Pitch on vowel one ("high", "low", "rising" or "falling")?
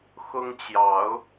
high